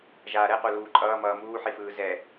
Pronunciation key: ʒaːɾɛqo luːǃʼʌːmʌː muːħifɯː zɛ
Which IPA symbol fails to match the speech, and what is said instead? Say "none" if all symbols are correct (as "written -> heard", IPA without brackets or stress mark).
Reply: none